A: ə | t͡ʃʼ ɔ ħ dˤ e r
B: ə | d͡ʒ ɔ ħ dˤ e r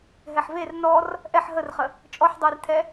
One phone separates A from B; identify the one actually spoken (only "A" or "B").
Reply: A